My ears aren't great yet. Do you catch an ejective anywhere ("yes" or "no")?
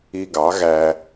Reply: no